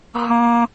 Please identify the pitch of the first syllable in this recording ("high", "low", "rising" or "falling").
high